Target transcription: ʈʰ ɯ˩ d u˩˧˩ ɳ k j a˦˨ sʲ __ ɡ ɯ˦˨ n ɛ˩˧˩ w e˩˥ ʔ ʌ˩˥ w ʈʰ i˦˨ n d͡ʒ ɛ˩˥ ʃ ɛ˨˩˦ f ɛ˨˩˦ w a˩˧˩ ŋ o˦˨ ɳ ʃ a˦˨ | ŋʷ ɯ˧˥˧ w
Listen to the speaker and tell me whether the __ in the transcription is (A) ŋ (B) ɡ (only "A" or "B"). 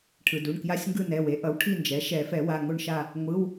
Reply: A